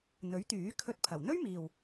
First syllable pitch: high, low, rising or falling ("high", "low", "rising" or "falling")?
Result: rising